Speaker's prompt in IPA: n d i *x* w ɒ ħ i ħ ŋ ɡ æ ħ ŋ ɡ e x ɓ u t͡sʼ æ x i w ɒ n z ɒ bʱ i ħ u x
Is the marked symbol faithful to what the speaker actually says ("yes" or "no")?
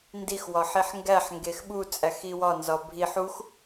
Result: yes